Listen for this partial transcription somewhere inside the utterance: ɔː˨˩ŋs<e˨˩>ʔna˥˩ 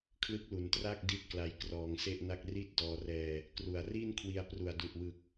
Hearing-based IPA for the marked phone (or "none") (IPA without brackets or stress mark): e˥˩